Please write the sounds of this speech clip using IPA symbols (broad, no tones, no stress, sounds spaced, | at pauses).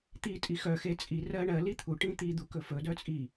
t̪ i tʼ i x œ x e t͡sʼ i r ɜ ɳ ɜ l i t̪ʰ u ʈ ĩ t̪ i d̪ u k ɵ f ɵ d œ t͡sʼ i